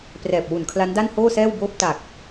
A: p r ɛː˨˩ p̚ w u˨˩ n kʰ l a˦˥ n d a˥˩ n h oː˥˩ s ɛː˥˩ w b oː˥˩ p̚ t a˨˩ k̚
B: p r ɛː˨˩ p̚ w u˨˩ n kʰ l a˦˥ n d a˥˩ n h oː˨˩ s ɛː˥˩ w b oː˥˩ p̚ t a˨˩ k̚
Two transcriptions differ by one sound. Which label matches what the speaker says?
A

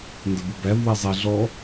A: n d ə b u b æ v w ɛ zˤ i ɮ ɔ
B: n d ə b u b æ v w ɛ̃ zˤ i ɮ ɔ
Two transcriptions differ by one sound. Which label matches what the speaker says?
A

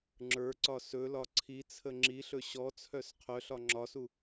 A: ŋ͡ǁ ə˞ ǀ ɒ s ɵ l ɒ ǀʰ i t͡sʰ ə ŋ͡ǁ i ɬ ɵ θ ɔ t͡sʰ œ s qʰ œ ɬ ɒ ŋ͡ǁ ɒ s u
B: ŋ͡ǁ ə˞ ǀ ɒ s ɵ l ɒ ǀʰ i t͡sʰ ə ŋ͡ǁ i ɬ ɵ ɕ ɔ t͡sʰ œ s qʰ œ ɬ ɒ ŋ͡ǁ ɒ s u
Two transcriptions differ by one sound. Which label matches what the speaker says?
B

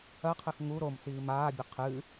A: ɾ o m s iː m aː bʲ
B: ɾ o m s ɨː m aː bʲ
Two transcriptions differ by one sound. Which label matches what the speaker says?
A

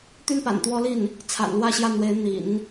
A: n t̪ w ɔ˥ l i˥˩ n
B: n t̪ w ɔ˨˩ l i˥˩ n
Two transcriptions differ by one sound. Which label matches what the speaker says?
A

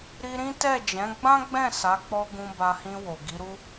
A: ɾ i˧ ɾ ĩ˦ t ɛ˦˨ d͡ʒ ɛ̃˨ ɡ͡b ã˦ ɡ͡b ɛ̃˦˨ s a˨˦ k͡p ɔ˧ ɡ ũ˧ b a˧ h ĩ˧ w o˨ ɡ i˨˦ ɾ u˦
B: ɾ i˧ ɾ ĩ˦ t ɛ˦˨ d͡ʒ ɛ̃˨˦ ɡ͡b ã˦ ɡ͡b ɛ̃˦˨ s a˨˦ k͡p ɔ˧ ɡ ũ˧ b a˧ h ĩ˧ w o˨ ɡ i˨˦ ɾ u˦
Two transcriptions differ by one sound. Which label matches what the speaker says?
B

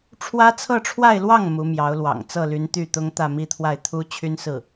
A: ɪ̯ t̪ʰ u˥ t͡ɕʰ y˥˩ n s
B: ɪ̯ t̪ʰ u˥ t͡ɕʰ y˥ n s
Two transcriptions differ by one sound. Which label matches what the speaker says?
B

